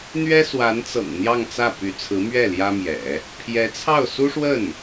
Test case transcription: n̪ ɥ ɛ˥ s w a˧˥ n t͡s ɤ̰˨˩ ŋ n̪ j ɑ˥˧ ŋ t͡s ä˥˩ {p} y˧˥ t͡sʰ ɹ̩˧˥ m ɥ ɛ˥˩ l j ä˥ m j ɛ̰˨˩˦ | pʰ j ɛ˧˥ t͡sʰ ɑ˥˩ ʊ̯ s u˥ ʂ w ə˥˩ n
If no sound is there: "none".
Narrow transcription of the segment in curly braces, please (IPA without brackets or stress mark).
p